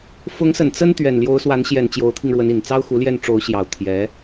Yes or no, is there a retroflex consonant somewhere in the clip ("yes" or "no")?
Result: yes